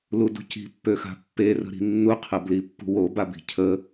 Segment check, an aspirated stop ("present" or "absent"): present